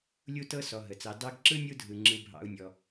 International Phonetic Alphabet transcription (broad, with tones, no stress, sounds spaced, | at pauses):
lʲ u˦ t ɤ˦ s ɔ˨ ɦ ə˩ t͡s ɑ˨ d ɑ˥ ɡ ǁ ɯ˥ nʲ u˦ dʱ ɯ˩ ŋ͡ǁ ɯ˨ bʱ ɑ̰˨ u̯ nʲ ɔ˩